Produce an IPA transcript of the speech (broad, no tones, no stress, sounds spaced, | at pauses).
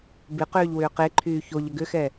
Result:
b ɪ q ʏː ʎ w ʏː q e ǃʰ yː ç o ʎ ə ɡ ʏ x ɛ